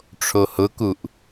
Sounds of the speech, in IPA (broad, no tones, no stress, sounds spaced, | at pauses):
ʈ͡ʂʰ o h ʊ k u ʔ